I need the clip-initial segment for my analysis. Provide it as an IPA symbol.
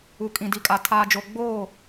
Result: u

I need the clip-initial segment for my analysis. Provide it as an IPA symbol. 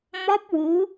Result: m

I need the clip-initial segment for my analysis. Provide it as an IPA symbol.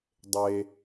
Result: dˤ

